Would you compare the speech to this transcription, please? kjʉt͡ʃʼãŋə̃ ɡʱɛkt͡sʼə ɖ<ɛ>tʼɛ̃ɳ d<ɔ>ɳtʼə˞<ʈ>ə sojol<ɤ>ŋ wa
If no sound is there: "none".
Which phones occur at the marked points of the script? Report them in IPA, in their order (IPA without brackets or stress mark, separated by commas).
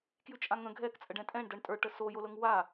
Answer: ɛ̃, ɤ, ʈ, ɤ